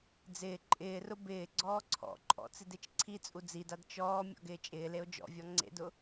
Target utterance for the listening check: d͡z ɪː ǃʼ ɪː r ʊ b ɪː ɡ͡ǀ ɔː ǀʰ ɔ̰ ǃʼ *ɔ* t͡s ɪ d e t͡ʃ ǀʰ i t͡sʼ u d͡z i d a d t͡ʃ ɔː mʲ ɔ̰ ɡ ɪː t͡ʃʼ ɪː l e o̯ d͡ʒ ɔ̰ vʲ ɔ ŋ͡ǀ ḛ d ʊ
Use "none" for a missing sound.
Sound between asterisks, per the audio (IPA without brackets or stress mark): ɔ̰